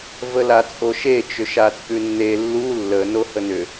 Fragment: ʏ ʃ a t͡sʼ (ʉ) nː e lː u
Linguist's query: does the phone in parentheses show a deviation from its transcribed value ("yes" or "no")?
no